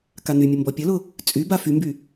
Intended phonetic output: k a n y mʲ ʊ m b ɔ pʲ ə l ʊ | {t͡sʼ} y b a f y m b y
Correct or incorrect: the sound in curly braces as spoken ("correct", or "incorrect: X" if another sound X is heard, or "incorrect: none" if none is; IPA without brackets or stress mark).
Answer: correct